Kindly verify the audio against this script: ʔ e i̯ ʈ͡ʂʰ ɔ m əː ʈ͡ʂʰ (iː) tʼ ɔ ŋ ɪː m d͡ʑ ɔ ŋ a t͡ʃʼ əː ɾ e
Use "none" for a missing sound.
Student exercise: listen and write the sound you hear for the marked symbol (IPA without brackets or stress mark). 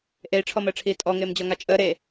iː